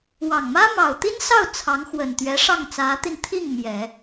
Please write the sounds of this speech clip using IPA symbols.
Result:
w ɑ˨˩ ŋ m ä˥ m ɑ˨˩ ʊ̯ t̪ i˥ n s ɑ˥˩ ʊ̯ t͡sʰ ɑ˧˥ ŋ x w ə˨˩ n t̪ ɥ ɛ˧˥ ʂ ɑ˥˩ ŋ t͡s ä˧˥ t̪ i˧ n t̪ʰ i˥˩ ŋ m j ɛ˨˩˦

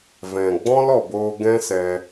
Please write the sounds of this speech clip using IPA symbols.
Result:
v ɛ̃˨ ɡ͡b ɔ̃˦ l ɔ˨ b oː˧ ɡ ɛ̃˦ s ɛ˧

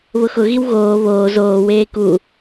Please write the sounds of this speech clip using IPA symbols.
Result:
β ʊ x ʊ ɣ i w ɣ oː β oː z oː w eː k u

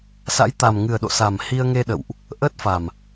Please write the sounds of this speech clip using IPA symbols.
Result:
s a̰˧˥ j t̪ a˨˩ m ŋ ɨ˨˩ ə̯ ɗ o̰˧˨ s a˨˩ m h i˧ ə̯ ŋ e˧ ɗ ə̰˧˨ w ʔ | ʔ əː˦˥ t̚ f a˨˩ m

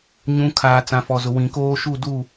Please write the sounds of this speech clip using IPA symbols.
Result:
ɲ ũ˨˦ kʰ aː˨ t͡s ã˨ f ɔ˨ z ʊ˨ w ĩ˨ k oː˦ ʃ u˦˨ d u˦˨

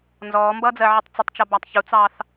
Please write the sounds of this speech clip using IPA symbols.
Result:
n z ɔː m b ʌː d͡z ɜ ʕ ɪ tˤ t͡s ɪ tˤ t͡ʃ ʌ b æ tˤ ç u t͡s ɑː θ

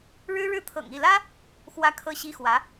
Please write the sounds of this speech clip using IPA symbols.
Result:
ɻ ɻ̩˥ ɻ ɻ̩˥˩ t̪ʰ ɤ̰˨˩ ŋ i˥˩ l ä˥ | x w ä˥ kʰ ɤ˥ ɕ i˥ x w ä˧˥

